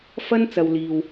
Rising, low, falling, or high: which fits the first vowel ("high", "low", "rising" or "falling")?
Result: high